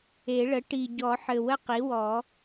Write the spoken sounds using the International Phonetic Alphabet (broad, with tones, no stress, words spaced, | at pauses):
e˨˩˦ɭə˩˥ ʈi˨˩ɟɔ˨˩˦ħɘ˨˩ wə˥qi˩˥wɔ˨˩˦